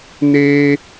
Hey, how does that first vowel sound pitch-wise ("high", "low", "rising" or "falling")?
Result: high